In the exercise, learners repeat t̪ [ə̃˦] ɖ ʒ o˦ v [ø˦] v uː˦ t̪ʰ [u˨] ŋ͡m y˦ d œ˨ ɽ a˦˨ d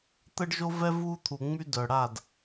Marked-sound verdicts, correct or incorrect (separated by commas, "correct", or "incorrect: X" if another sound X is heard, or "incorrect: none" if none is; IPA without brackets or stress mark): incorrect: ə˦, incorrect: ɛ˦, correct